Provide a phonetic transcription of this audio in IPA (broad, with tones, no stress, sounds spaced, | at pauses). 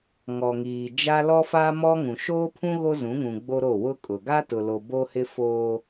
ŋ ɔ˨ ŋ iː˨ d͡ʒ a˦ l ɔ˦ f aː˦ m ɔ˦ ŋ ũ˨ ʃ oː˦ pʰ ũ˦ ɣ o˦ z ũ˨˦ ŋ ũ˨ ɡ͡b o˦ ɾ o˦˨ w ʊ˦ kʼ ʊ˨ ɡ a˦ t ʊ˨ l o˨ b o˦ h ɪ˦ f oː˦